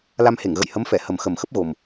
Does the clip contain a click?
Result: no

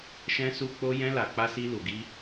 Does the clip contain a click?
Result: no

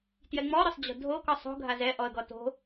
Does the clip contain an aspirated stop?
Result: no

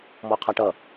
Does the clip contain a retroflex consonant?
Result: yes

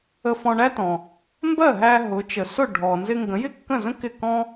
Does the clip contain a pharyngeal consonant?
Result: no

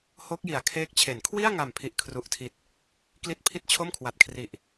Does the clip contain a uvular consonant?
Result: no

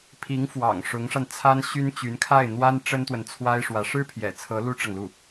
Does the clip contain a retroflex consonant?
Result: yes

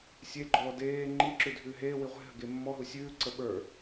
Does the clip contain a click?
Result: yes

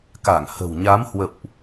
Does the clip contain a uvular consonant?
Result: no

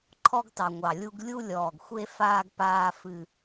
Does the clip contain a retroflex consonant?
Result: no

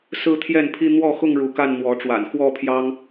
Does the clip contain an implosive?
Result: no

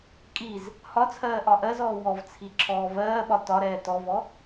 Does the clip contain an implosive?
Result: yes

